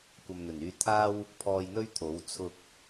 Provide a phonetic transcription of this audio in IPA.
kʷɐ˨mn̪ɵ˨˩nyː˧ t̪ʰaː˥w | pʰɔː˧jn̪ɵ˥ɥt̪ʰo˨˥w t͡sʰʊ˧k̚

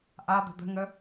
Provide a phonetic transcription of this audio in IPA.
ʔad̪ə̤ d̪ə̤ŋə

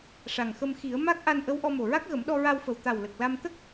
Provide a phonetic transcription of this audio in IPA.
ʂa˨˩ŋxə˧mxi˨˩˦ə̯ ma˦˥k̚ʔa˧nʔə˧˥w ʔɔ˧mo˨˩ɹa˦˥k̚ɣə˨˩˦m ɗɔ˧ɹa˧wfə˨˩w t̪a˨˩w lə˨˩k̚la˧m t̪ə˦˥k̚

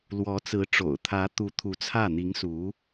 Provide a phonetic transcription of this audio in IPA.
lwɔ˧˥t͡sɹ̩˧˥ ʈ͡ʂo̰˨˩ʊ̯ t̪ʰä˧˥t̪u˧˥ t̪ʰu˧˥t͡sʰä˥˩ n̪i˧˥ŋsu˧˥

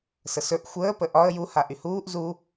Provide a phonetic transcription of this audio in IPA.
səsɵʔ xʷəː pəʔɒə̯ ju haʔyhuːʔ zu

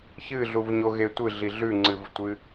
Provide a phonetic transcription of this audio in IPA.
çɨɮuvɲoɣe tʷɨɮi ɮʉŋ͡ǀɨvtʷɨ

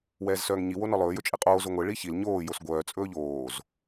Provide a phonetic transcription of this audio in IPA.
wɛːzsœːŋɲi wonɔlˠɵː jɵt͡ʃʼeqʼoː zoŋʷe ɭiçil ɲoː josɡʷœː t͡sʼɵːʎoːz

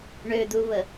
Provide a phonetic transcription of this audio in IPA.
ɳød̪uβə

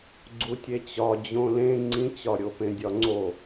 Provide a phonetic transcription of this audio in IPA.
ɡ͡ǀutʲet͡ɕɒ d͡ʑõlẽ ŋ͡ǀĩt͡ɕɒɾʲo pẽdʲɒŋ͡ǀo

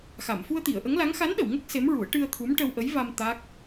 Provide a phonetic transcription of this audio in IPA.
xa˨˩˨m fu˧ə̯t̪i˨˩˨ə̯ʔə˧˥ŋla˧˥ŋ xa˧˥nɗə˨˩˨wŋə˦˥k̚ se˧˥mɹu˨˩˦ə̯ ʈɨ˧ə̯t̪ʰu˧˥m ʈə˧wʔə˧˥j va˧m t̪a˦˥k̚

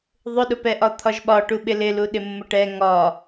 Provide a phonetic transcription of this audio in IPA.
ðˤʊɗʊpɛʔɒ t̪ʰɒʒɓɒ ʈuɓɪlɪlu ɗɪmːʊʈɛ ŋɒ

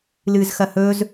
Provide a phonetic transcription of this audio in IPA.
lɨːzxɐhɵz

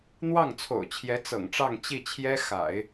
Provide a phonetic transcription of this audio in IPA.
n̪wɑ˥˩ŋt͡sʰo̰˨˩ʊ̯t͡ɕʰjɛ˧˥ t͡sɤ̰˨˩ŋʈ͡ʂɑ˥˧ŋ t͡ɕi˥˩t͡ɕʰjɛ˥ xa̰˨˩˦ɪ̯

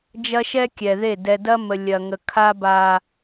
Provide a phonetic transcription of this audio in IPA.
d͡ʒɐ˦ʃɛ˦kʲɛ˨ðe˦˨ dɛ˨dɐ˦mə˨ lʲɐ˨ŋə˨ kʰa˦ba˨

